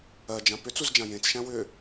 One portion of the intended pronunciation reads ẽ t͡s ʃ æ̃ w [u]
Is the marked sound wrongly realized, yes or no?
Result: yes